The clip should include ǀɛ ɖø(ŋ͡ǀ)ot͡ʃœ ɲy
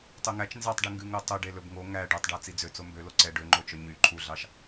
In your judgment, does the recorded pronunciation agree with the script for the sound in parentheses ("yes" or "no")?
no